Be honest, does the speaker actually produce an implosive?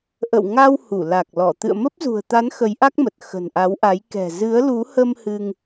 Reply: no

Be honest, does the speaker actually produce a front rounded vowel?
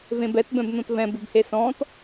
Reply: no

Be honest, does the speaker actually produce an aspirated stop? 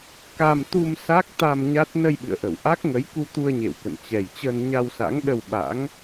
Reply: no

